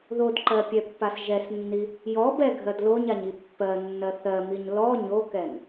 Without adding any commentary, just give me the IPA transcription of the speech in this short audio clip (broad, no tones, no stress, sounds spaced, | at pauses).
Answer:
ð o d ǃ ɜ pʲ ɛ pː a s ʒ ɛ s nː i | j ɔ b ɛ ɡʱ ɜ d l o ɲ a ɲ i pː ɜ nː ɜ θ ɜ m i ɲ l ɔ ɲ o k ɛ n